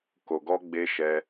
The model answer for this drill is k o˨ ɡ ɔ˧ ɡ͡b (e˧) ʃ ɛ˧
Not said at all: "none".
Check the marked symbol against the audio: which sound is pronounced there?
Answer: e˧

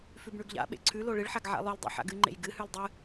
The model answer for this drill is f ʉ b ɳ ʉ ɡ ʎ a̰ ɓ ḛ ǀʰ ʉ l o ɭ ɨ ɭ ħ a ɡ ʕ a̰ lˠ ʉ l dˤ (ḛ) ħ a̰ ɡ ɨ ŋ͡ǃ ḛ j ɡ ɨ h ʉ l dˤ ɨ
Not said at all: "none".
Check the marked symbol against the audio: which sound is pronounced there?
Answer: ḛ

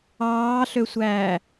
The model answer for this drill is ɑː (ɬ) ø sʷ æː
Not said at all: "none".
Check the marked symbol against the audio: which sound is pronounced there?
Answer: ɬ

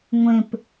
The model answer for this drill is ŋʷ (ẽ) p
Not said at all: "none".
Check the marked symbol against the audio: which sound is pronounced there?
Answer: ẽ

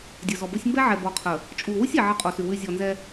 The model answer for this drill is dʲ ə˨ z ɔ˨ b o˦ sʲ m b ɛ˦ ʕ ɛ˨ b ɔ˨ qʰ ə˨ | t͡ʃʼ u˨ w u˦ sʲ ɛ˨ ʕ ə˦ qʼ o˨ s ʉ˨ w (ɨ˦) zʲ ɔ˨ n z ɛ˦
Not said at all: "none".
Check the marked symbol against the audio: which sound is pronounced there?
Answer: ʉ˦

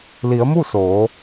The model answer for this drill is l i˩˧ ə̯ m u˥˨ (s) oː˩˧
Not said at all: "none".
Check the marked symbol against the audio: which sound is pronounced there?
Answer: s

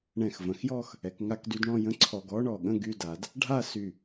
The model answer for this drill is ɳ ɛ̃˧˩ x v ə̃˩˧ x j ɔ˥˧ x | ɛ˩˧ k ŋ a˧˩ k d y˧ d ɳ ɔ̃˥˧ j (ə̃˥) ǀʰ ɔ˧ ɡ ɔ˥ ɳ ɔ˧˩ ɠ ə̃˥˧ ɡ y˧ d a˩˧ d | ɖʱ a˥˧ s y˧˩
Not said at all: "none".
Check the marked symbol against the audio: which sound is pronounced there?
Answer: ə̃˥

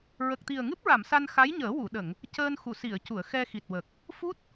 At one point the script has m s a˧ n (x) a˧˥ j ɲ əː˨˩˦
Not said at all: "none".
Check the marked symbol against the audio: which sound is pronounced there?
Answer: x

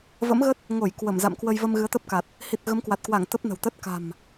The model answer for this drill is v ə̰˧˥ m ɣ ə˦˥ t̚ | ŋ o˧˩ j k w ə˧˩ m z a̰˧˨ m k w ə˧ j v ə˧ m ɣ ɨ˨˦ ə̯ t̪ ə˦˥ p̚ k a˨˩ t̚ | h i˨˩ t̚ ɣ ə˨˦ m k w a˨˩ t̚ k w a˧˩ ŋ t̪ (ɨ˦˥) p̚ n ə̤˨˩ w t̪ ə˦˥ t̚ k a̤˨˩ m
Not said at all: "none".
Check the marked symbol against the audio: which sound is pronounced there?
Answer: ə˦˥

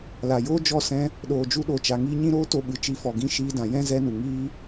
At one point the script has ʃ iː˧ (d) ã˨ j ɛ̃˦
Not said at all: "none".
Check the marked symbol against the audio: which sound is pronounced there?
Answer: d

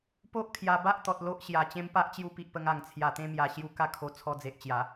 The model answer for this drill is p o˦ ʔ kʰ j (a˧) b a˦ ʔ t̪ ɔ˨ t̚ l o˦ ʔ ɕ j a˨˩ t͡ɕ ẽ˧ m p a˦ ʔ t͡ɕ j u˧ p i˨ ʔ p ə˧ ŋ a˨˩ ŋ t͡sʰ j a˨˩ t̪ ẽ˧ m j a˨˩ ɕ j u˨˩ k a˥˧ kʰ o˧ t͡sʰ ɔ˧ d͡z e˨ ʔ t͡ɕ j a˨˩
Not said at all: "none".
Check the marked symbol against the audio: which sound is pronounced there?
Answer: a˧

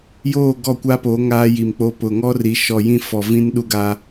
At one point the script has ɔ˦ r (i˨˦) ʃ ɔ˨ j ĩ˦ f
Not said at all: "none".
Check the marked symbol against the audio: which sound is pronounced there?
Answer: i˨˦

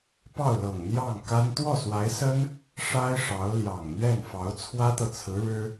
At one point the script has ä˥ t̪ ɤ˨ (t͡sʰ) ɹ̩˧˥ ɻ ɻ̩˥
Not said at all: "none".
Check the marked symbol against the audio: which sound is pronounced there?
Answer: t͡sʰ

